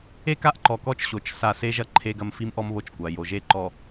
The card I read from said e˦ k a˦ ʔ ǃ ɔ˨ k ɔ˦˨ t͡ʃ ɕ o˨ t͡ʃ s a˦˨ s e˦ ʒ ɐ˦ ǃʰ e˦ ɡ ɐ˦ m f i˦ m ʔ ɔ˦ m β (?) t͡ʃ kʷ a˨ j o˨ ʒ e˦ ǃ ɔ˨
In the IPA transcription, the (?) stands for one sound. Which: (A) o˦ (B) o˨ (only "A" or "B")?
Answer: A